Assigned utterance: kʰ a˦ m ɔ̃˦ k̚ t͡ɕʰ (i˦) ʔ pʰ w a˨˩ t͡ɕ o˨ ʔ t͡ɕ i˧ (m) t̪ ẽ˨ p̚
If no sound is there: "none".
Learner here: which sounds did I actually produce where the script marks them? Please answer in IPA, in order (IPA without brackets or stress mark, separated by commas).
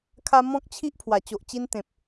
i˦, n